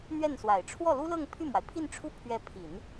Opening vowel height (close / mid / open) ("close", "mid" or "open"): mid